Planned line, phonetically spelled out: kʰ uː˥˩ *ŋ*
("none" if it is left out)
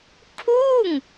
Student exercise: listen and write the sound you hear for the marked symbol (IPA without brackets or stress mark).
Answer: ŋ